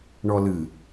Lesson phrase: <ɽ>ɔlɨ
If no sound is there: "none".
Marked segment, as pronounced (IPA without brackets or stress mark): ɳ